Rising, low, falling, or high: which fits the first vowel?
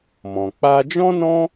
low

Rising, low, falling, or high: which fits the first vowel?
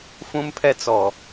high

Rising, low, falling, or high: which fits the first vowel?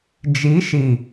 rising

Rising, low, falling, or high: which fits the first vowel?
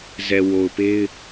low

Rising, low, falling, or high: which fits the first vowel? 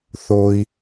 low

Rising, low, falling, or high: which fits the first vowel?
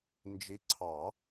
rising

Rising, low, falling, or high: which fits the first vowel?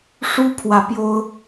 high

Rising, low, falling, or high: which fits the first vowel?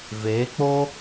rising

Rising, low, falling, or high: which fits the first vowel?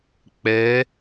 rising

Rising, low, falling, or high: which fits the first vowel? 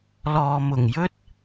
low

